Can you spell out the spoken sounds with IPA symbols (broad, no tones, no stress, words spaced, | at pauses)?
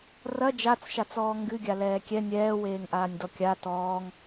rɐ d͡ʒat͡sʃat͡sɔː ŋɡɨɡʲa lɛːkʲɛ nʲɛːweːŋʔaːnʲ dɔkʲa tɔːŋ